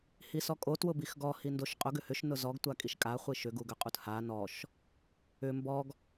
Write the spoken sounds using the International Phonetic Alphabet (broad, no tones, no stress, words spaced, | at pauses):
hisɔkʼo twʊbixɡɔ hindoʃqʼʊɡ ʏhʏʃ nʊzɔɡ tʷakʼiʃkʼa χʷiʃʏ ɡuɡʏqʼutha nɔʃ | ʏ mbɔɡ